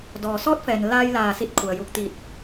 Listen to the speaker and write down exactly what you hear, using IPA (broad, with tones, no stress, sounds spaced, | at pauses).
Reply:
d ɔː˩ s ɔː˧˥ t̚ f ɛː˩ n l a˧ j l aː˧˩ s i˧˥ t̚ kʰ u˩ ə̯ j u˧˩ k̚ t̪ i˧˩ t̚